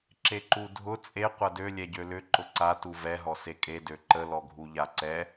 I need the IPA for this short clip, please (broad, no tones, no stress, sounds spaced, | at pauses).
ǁ e ǃ u dʱ ʊ t͡sʼ e qʷ ɐ d ø lʲ ɛ ɟ ø l ʏ ǃ ʊ ǀ a t u v ɛ ɦ ɔ s e kʼ e d ø ǃ ə l ɔ ɡʱ u ʎ a ǀ ɛ